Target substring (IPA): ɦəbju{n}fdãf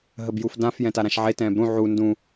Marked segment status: incorrect: none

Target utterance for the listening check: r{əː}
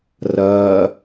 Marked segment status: incorrect: ɐː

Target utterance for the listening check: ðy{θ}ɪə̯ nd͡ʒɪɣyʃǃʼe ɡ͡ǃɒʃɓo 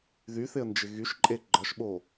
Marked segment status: correct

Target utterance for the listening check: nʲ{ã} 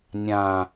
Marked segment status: correct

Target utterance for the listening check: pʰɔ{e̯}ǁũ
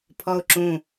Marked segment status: incorrect: o̯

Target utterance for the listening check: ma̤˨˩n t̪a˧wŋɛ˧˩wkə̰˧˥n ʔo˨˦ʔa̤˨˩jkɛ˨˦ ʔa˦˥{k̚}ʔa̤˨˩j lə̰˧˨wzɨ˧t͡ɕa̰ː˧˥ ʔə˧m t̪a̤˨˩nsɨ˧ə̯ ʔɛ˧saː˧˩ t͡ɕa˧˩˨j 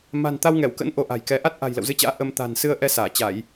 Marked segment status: incorrect: t̚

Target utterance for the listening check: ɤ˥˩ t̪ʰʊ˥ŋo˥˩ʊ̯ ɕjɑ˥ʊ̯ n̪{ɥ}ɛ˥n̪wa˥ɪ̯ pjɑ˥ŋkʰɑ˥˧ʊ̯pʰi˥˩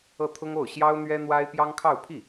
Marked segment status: correct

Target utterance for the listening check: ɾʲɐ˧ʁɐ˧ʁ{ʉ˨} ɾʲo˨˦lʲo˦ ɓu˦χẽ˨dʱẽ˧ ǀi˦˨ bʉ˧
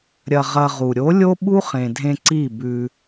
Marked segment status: incorrect: u˨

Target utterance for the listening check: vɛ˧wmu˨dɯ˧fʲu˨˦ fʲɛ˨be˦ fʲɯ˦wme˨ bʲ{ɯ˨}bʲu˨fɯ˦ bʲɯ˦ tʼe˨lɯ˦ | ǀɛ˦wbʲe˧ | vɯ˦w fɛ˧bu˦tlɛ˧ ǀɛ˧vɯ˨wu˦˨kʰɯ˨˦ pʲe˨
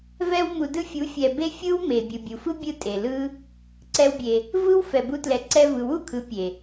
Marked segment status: correct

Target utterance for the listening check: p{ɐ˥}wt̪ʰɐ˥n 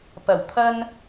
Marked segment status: incorrect: ɐ˨˩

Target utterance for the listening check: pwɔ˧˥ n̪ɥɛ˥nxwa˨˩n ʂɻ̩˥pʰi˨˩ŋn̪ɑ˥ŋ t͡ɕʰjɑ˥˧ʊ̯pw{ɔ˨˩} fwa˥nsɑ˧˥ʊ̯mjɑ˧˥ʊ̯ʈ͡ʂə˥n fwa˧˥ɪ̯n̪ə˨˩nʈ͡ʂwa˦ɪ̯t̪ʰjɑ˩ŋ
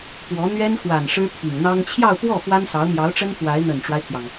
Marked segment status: incorrect: ɔ˥˩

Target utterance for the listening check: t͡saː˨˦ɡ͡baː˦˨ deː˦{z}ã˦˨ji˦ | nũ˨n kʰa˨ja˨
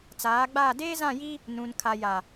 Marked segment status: correct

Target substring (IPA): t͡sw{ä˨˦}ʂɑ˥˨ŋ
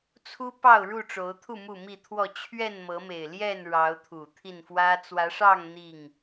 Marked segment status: correct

